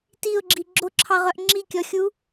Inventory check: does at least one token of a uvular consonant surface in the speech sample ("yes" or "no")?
yes